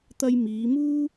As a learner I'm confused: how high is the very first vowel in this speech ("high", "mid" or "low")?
low